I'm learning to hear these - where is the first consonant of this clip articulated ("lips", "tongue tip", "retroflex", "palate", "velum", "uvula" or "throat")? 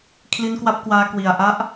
velum